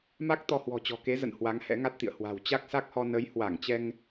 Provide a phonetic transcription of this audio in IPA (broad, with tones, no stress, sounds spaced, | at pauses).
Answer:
m a˦˥ k̚ t̪ ɔ˧ h w ɔ̤˨˩ t͡ɕ ɔ̤˨˩ k e˨˦ z ə̰˧˨ n h w a˨˦ ŋ h ɛ̰˧˥ ŋ a˦˥ t̚ t̪ ḭ˧˨ ə̯ h w a̤˨˩ w t͡ɕ a˦˥ k̚ s a˦˥ k̚ h ɔ˧ n ə˨˦ j h w a˧˩ ŋ t͡ɕ ɛ˧ ŋ